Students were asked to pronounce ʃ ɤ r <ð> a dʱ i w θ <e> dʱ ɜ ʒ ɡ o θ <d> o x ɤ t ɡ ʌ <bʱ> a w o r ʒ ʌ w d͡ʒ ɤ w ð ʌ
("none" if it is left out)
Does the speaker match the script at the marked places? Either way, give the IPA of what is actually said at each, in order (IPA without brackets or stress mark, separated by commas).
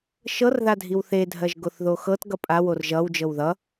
ð, e, ð, pʼ